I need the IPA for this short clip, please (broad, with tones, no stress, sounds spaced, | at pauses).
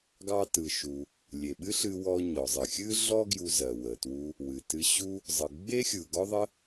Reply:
ɡ ɑ˧ t ɯ˩ ʃ u˩ | lʲ e˩ ɓ ɨ˥ ɬ ɨ˧ w ɔ˧ ɲ ɔ˩ zˤ ɨ˩ xʲ ɨ˥ ɮ ɔ˥ ɡ j u˧ z ɜ˩ w ə˩ t w u˧ | w ɨ˩ t ɨ˧ ɕ u˥ | zˤ ɯ˩ ɡ͡b e˥ xʲ ɯ˩ ɡ ɔ˥ ðˤ ə˥